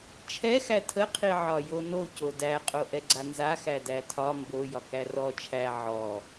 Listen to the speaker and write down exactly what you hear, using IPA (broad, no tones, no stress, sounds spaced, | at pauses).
t͡ʃʰ ɛ x æ tʰ ə qʰ i ʕ ɒ j o n o c o d æ qʼ o ʔ ɛ ɡ͡ǀ a n z a x æ d æ tʰ ɒ m b o j ɒ k æ r ɔ t͡ʃʰ æ ʕ ɔ